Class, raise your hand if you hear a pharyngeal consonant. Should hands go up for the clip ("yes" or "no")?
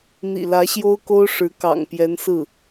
no